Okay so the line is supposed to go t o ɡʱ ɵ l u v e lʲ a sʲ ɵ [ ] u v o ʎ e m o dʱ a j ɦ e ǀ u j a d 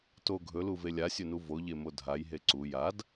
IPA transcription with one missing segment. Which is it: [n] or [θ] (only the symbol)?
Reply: n